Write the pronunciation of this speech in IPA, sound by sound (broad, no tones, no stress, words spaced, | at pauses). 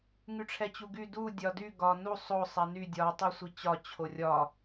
ŋyʈ͡ʂʰɛt͡ɕuɡy du dʲɒdy ɡɒ nu sˤo sˤɛny dʲɒ tˤisʷit͡ɕɒ t͡ɕʰorʲɒ